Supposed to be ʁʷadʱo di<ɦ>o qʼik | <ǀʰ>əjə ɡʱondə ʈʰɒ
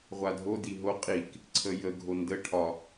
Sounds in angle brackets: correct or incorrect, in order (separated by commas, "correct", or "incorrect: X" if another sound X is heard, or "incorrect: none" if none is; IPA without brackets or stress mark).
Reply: correct, correct